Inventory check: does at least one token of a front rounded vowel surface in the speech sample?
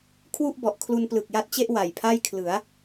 no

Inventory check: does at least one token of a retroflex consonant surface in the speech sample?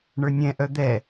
yes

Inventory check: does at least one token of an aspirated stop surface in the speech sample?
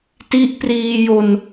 no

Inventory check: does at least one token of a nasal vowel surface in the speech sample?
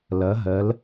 no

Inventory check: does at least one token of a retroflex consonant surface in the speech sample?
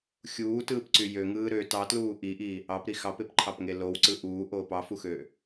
no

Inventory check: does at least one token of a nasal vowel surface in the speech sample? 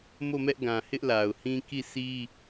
yes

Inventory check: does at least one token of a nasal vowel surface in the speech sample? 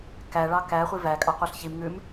no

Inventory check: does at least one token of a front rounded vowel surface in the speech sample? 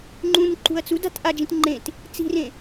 no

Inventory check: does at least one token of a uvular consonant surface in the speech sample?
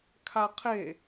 yes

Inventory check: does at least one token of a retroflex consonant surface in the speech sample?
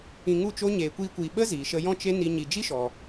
no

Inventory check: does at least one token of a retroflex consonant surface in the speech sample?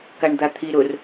yes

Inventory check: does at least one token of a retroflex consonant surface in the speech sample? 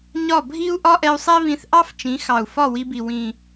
no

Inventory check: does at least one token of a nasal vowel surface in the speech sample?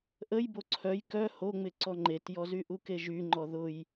no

